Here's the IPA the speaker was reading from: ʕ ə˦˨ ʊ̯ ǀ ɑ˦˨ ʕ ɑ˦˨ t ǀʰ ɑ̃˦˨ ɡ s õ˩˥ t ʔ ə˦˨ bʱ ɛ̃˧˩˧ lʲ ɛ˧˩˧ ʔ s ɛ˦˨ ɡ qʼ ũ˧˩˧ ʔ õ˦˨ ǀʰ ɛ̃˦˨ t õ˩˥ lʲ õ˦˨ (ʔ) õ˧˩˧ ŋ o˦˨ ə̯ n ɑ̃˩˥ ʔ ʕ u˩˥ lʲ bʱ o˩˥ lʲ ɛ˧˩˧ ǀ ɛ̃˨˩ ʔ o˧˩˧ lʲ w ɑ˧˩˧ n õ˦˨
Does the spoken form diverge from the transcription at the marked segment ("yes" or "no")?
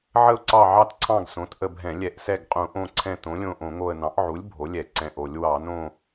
no